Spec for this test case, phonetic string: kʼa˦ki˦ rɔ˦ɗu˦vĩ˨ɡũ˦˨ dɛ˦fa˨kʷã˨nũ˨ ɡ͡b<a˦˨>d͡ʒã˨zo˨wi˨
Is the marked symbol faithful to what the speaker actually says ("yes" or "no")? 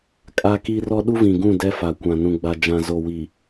no